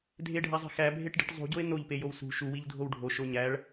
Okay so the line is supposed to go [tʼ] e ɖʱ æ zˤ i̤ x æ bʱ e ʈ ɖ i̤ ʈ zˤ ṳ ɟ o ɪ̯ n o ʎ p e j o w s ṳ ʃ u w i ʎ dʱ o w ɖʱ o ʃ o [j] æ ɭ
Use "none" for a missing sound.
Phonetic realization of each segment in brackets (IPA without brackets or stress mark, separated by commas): dʱ, ɲ